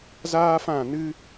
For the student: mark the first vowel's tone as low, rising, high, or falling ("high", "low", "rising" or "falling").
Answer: high